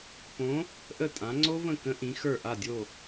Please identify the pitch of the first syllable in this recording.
rising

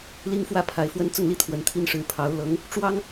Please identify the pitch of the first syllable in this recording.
high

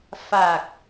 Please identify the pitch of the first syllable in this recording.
low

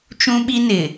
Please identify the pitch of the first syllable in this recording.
high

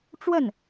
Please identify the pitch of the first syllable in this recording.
falling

